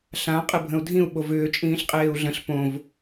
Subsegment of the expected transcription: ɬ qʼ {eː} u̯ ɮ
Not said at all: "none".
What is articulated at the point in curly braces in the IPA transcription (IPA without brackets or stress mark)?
eː